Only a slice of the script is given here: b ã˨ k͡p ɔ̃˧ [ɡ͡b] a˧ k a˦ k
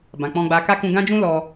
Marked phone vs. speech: correct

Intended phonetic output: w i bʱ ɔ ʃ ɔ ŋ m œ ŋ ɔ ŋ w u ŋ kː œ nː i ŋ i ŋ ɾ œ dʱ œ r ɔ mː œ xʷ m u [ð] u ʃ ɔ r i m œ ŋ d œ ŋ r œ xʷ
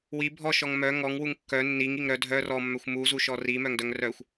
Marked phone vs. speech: incorrect: z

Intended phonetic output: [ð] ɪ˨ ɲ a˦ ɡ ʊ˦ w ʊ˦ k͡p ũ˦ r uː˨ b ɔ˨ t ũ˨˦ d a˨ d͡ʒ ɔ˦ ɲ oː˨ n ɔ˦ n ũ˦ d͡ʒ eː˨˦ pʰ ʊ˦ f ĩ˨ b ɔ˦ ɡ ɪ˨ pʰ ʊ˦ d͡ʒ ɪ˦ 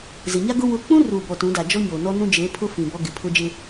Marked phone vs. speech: incorrect: z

